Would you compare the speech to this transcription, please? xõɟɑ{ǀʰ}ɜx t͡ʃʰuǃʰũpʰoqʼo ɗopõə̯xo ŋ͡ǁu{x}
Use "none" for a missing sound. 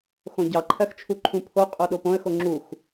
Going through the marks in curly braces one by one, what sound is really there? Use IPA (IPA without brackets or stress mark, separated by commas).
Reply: ǃʰ, x